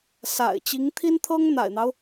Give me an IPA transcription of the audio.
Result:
sa̰˨˩ɪ̯t͡ɕi˧˥ŋt̪ʰi˥nt̪ʰɤ˥ŋ n̪a̰˨˩ɪ̯n̪ɑ˦ʊ̯

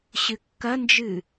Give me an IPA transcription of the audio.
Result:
ɕɨkːɐnd͡ʒɨ

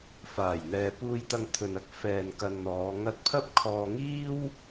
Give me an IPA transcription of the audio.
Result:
faː˨˩j n̪ɛː˨puː˧jt̪ɐ˧ŋ t̪ʰɵ˨nɐ˥k̚ fɛː˨nkɐ˨n n̪ɔː˨˧ŋɐ˥t̚ pʰɐ˥p̚kʰɔː˧ŋiː˥w

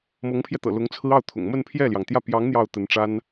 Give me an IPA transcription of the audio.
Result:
mɤ˧˥ŋpʰjɛ˧t̪ɤ̰˨˩lʊ˧˥ŋ t͡sʰɹ̩˥ɑ˥˩ʊ̯t̪ʰʊ̰˨˩ŋ mə˥˧npʰjɛ˥˩ljɑ˩ŋt̪jä˥˩ pjɑ˧˥ŋ n̪jɑ˥˩ʊ̯t̪ə˧˥n ʈ͡ʂa˥n

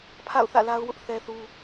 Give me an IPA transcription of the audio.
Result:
pʰa̰˦˨ʊ̯θä̰˦˨ la˦ʊ̯wʊ˦ʔ θɛ˦θu˦

